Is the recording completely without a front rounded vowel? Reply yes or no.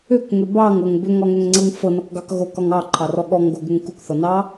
no